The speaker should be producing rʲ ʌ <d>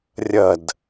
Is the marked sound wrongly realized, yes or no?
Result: no